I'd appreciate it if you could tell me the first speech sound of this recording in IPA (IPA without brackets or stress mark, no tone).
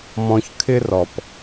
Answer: m